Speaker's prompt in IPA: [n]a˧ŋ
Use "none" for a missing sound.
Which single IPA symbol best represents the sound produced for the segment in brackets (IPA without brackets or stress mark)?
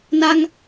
n